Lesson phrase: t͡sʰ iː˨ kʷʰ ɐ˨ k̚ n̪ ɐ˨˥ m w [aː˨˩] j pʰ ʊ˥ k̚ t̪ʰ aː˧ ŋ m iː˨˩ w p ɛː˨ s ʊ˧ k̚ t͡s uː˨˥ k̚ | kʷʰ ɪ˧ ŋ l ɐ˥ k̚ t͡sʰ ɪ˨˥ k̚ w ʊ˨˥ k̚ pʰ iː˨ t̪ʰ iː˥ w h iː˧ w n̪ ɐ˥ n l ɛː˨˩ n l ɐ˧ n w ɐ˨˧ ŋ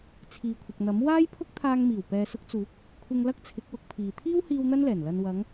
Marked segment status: incorrect: aː˥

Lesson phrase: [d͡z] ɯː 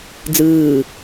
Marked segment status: correct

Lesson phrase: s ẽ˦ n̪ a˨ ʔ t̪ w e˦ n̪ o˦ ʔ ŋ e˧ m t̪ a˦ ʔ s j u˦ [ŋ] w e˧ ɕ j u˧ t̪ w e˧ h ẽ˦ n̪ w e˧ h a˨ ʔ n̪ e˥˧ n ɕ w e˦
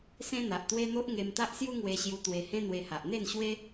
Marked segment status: correct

